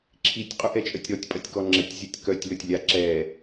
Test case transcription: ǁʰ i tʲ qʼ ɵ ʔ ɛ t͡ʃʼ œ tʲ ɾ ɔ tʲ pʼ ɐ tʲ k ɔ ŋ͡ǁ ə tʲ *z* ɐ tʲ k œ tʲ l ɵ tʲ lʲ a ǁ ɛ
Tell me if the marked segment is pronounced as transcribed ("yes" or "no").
no